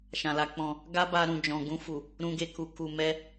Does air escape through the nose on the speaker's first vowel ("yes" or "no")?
yes